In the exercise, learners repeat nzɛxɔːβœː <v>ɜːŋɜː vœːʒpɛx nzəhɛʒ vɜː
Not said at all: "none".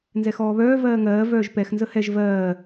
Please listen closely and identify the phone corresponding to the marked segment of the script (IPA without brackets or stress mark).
v